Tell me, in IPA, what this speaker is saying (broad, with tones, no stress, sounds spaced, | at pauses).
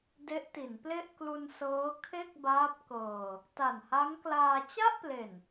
d e˦˥ ʔ t i˩˦ n p l e˥˩ ʔ k l u˧ n s ɤː˦˥ kʰ e˥˩ k̚ b aː˦˥ p̚ k ɤː˧ | t a˨˩ n h a˦˥ ŋ k l aː˧ t͡ɕ a˥˩ ʔ p l e˨˩ n